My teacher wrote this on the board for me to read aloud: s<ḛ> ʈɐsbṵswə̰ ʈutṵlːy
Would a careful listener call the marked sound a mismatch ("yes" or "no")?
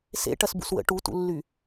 no